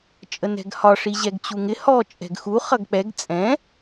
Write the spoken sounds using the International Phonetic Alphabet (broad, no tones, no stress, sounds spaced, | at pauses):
t͡ʃʼ ə n ɛ̤ ɡ h ɒ ʂ i ʑ ɛ ɡ t͡ɕ u ŋ ɪ h ɔ t͡ʃʼ ɛ̤ ɡ x u χ ʌ ɡ k͡p ɛ ɡ t͡sʼ ɛ̃